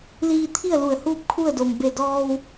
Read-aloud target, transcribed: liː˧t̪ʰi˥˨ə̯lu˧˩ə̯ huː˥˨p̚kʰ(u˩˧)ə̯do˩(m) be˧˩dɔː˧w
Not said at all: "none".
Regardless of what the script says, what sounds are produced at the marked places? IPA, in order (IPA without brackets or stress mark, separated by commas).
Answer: u˥˨, m